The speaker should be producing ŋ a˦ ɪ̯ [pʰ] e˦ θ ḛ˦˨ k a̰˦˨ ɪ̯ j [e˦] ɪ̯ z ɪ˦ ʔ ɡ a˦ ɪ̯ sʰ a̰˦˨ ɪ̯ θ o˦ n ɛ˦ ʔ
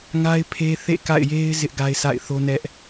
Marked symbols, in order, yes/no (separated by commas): yes, yes